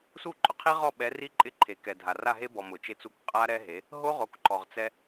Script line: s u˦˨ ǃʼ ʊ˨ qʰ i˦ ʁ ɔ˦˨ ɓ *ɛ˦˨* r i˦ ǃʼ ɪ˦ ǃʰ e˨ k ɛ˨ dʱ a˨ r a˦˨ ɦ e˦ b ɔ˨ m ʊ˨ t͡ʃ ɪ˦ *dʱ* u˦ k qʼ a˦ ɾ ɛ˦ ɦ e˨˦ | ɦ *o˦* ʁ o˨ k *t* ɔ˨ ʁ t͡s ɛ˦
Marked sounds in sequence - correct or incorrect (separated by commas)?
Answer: incorrect, incorrect, correct, incorrect